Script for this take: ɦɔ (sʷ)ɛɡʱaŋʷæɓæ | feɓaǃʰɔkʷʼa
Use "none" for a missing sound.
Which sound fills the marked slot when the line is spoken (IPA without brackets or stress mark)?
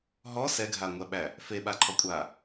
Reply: s